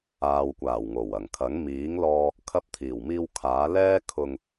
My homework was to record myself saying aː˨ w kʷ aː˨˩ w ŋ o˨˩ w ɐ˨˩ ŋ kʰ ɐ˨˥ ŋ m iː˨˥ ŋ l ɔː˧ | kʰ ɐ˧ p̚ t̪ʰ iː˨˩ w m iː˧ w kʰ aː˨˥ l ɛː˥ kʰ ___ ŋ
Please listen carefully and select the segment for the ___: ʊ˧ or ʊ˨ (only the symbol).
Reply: ʊ˧